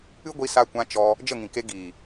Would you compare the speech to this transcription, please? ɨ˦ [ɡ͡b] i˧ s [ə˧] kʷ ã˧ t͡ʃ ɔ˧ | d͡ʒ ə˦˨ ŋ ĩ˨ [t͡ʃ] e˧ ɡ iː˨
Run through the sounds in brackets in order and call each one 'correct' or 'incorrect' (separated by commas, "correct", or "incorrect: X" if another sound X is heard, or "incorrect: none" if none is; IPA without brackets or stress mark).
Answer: incorrect: ɡʷ, incorrect: a˧, incorrect: k